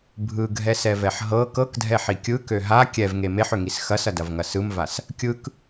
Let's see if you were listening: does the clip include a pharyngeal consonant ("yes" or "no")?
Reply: yes